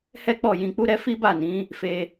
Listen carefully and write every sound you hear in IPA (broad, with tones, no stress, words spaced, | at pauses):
hɛ˦k͡pɔ˦˨ jĩ˧k͡pu˦ɾɛ˦ fi˦ba˦˨nĩ˨˦ | fe˧